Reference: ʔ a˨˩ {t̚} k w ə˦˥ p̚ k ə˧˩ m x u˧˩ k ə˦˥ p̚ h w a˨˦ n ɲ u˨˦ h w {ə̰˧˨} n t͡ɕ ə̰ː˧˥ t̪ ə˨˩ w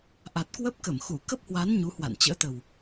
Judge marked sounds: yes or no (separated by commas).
yes, no